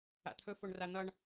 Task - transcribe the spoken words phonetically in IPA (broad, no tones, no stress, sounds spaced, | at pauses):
a̰ t̪ʰ ɵ f o ɳ r a n̪ ʌ ɳ